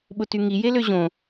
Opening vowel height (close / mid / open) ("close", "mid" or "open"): close